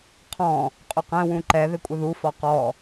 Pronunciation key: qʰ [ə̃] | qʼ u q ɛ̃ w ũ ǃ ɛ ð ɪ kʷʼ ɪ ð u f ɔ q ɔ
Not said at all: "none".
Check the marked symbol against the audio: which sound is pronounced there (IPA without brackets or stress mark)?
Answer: ɔ̃